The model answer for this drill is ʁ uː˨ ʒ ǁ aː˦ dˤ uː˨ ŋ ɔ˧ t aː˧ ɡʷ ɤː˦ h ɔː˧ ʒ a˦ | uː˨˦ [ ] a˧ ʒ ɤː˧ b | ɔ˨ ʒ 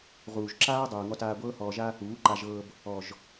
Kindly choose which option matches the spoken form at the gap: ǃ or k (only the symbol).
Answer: ǃ